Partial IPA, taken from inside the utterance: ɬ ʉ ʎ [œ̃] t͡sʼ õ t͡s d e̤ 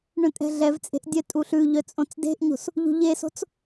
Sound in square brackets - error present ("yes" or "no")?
yes